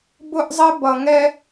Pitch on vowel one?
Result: high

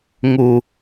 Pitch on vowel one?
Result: low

